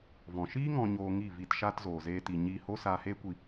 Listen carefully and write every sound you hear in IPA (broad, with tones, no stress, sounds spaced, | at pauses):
v ɔ̃˨ ʃ iː˦ ŋ ɔ̃˨ ɲ oː˨ ŋ i˦˨ v i˧ t ʃ aː˦ t z oː˨ z eː˧ t i˨ ɲ iː˧ h o˦ s aː˧ h eː˦ kʷ i˧